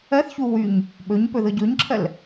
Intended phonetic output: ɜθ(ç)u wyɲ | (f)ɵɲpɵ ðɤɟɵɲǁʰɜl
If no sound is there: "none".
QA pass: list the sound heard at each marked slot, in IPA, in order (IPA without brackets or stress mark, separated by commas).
ç, ɓ